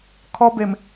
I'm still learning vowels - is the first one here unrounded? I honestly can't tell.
no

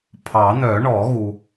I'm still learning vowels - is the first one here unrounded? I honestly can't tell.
yes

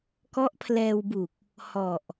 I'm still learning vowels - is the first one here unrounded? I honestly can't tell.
no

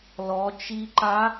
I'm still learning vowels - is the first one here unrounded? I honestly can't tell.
no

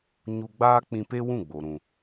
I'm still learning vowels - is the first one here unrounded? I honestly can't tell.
no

